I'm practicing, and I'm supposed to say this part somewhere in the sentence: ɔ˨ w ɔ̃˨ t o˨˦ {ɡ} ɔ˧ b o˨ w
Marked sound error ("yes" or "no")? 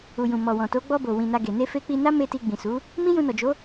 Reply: yes